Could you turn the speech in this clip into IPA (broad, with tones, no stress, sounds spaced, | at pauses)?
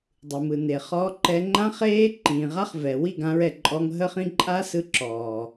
dˤ ɯ˨ m ɯ˨ n e˨ χ ɔː˧ ǃ ɛ˧ ŋ͡ǃ ã˦ χ eː˦ ǃ ĩː˨ ʁ a˦ χ v ɛ˨ w i˦˨ ɡ ã˧ ɹ ɛ˨ ǃʼ ɔ˧ ŋ ɦ ə˧ χ ĩ˧ ǃʼ a˦ s ɯ˧ ǁ ɔː˨